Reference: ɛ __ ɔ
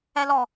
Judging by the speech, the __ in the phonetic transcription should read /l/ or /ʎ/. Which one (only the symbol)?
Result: l